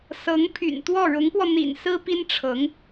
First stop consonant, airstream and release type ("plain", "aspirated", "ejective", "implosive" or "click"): aspirated